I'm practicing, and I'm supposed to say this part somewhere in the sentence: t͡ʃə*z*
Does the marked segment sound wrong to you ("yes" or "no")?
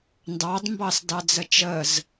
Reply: no